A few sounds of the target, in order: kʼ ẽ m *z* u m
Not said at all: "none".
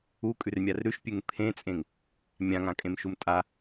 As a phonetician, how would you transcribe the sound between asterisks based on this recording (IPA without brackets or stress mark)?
ʃ